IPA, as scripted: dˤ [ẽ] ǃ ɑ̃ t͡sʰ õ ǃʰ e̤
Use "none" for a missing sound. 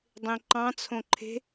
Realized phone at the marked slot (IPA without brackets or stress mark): ẽ